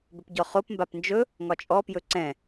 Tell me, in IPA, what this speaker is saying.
b ɵ p ɟ ɔ χ o p m b a p n d͡ʒ ɵ | ŋ ɒ t͡ʃʼ ɔ p j ɵ ǀ ɛ̃

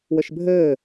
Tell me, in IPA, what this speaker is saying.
w ɘ ʃ bʱ ɘː

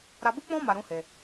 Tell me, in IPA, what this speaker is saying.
ɾ a˧ b u˦ k͡p ɔ̃˦ m a˧ ɾ ũ˦ h e˧

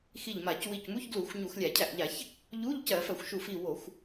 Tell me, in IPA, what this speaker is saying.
x i˧˩ ʎ m a˧˩˧ c w i˧˩ c m u˧˥˧ ç ɡ l u˧˩˧ xʷ ɲ u˧˩˧ x lʲ æ˧˩˧ cʰ æ˧˩ ʔ ʎ a˧˩˧ ç | ʎ u˧˥˧ ʎ c ɜ˧˩˧ f ɜ˧˩˧ xʷ ʃ u˧˩ f i˧˩ w o˧˩˧ xʷ

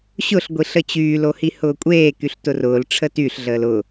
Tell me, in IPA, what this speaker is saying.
ɕ ʊ ɬ ɡʷ i ɬ ə t͡ɕ yː l o h i h ʊː kʷʼ eː k y ɬ t ʊ r ʊː l ʈ͡ʂʰ ə t y ɬ ɮ əː l ʊ

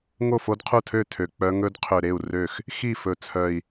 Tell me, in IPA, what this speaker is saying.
ŋ o˥˩ f o˦˥ d qʰ u˥˩ tʰ ø˥˩ tʰ ø˨˩ k͡p œ˦˥ ŋ ɵ˦˥ d qʰ ø˨˩ ɾ e˥˩ u̯ r ø˥˩ x | x i˥˩ f ɵ˨˩ t͡sʰ œ˨˩ i̯

